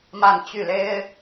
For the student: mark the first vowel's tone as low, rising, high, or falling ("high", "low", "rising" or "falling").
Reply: falling